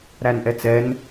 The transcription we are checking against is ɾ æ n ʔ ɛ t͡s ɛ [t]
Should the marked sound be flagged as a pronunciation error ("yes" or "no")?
yes